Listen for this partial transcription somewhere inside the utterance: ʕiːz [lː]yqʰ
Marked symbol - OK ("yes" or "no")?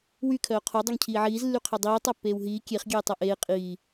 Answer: yes